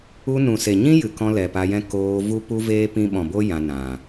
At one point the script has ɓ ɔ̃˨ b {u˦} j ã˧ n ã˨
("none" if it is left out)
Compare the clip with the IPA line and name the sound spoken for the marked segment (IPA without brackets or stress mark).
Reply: o˦